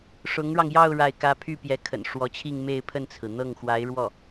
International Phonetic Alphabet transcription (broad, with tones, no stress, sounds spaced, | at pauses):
ʂ ʊ˧˥ ŋ ɻ ɑ˧ ŋ j ɑ˥˧ ʊ̯ ɻ a˥˩ ɪ̯ k ä˥ pʰ y˥˩ p j ɛ˧˥ kʰ ə̰˨˩ n ʂ w ɔ˧˥ t͡ɕʰ i˥˧ ŋ m e˥˧ ɪ̯ pʰ ə˥˩ n t͡sʰ ɹ̩˩ n̪ ɤ˥˩ ŋ x w a˧˥ ɪ̯ ɻ w ɔ˥˩